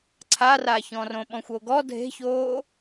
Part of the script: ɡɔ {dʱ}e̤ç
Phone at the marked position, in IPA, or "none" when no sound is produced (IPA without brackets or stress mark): dʱ